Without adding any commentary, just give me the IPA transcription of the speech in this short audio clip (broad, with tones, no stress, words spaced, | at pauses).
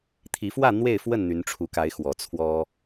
t̪ʰi˨˦fwä˥˨ n̪we˥˨ɪ̯fwə˥˨n n̪y˨˦nʈ͡ʂʰu˨˦ka˨˦ɪ̯ xwɔ˨˩t͡sʰwɔ˦